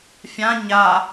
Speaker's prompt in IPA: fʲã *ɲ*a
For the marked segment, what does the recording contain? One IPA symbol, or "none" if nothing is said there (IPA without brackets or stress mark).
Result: ɲ